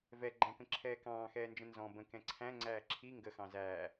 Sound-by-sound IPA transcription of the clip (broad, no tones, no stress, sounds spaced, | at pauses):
v ɛ ɡ͡ǃ æ̃ k ə̃ ǁʰ ɛː k ɑ̃ː x ɛː n d͡ʒ ə̃ n z ɔ̃ b ə̃ k ɛ̃ ǀʰ æ̃ ŋ͡ǀ æː ǁʰ i ŋ ɡ ə x ɑ̃ z æː